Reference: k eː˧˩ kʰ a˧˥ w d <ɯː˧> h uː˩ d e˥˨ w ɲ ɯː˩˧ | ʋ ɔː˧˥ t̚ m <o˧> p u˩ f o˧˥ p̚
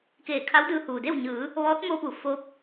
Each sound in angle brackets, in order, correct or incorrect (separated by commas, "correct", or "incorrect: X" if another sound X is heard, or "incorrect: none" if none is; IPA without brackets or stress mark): correct, correct